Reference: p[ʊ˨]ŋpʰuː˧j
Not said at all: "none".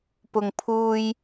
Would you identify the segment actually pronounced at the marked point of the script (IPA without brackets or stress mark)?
ʊ˨